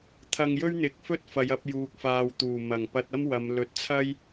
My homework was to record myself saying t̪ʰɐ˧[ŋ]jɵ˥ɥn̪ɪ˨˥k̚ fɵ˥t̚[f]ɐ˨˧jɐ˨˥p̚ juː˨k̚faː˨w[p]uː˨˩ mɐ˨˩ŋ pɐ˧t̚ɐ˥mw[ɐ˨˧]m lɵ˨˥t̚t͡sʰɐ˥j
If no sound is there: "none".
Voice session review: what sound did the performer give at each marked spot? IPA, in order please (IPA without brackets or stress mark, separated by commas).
ŋ, f, t̪, ɐ˨˧